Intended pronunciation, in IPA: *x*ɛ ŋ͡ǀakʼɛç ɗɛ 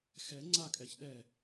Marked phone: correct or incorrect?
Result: correct